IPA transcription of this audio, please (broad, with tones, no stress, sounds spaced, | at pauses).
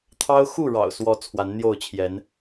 t̪ʰ ɑ˦ ʊ̯ x u˥˨ ɻ ɑ̰˨˩ ʊ̯ s w ɔ˨˦ t͡sʰ w a˨˦ n n̪ j o˥˨ ʊ̯ t͡ɕʰ j ɛ˨˦ n